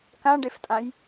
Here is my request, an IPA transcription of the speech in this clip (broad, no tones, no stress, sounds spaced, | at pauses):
k ã ɖ e f tʼ ã j